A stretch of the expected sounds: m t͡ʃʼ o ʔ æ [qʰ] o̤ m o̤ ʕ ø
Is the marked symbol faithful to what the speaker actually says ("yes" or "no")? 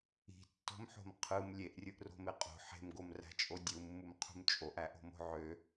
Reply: no